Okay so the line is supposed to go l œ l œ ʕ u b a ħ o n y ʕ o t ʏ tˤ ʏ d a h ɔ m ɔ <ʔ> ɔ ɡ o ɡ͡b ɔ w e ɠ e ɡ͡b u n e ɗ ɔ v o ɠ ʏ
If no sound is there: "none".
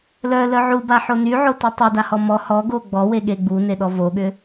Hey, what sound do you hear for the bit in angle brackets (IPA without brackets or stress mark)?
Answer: h